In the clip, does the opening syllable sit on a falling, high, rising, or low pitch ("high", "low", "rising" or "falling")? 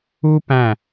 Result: high